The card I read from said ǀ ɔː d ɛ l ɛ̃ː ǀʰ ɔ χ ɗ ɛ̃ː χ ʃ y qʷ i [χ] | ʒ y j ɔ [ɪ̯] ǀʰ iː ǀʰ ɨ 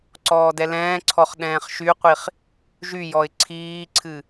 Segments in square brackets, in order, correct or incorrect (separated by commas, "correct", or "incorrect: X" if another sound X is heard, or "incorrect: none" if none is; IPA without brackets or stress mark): correct, correct